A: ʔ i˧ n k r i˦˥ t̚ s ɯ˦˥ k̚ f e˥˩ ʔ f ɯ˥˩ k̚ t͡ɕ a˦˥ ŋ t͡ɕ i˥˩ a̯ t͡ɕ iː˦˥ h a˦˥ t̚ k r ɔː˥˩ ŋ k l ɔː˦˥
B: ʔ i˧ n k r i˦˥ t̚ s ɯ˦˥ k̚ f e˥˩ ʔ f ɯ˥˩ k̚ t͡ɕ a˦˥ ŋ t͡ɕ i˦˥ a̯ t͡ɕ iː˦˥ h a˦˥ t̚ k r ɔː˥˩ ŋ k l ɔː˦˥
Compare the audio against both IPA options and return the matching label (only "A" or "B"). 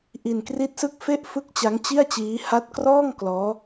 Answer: A